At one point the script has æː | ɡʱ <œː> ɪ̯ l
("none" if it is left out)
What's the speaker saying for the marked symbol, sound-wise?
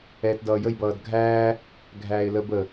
æː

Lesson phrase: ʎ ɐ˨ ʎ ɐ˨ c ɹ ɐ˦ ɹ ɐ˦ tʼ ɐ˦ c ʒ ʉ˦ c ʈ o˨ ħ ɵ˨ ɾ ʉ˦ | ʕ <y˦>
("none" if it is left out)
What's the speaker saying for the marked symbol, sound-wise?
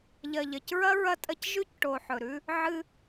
ɨ˦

